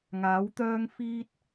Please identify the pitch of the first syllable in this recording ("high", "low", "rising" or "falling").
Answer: rising